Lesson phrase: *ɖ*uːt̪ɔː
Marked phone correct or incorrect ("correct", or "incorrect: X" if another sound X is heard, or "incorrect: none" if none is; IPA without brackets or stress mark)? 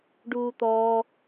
correct